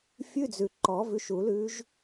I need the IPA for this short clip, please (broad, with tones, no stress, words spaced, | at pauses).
fʲʉ˧˥˧d͡zʉ˨ ǃɔ˨˩˦vʉ˨˦ʃu˨˩˦lʉ˨˦ʒ